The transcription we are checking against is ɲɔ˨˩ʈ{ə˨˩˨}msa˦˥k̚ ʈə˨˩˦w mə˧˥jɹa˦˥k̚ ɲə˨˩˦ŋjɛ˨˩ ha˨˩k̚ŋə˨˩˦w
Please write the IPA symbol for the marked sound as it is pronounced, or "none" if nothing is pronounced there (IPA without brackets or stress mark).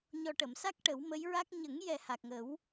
ə˨˩˨